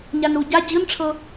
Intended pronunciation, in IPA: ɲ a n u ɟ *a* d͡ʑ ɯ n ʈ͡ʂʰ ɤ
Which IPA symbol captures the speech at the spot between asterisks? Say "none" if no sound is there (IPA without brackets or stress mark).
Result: a